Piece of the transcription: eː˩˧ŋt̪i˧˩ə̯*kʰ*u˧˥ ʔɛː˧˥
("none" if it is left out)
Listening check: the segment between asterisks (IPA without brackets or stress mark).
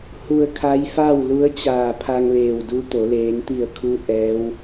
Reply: kʰ